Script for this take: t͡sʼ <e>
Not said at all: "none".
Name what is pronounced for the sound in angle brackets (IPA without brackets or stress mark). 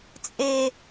e